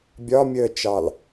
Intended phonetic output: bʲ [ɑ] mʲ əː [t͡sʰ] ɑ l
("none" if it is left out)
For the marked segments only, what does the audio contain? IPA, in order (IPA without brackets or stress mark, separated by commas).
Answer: ɒ, t͡ʃ